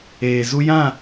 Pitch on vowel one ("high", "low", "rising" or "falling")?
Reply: low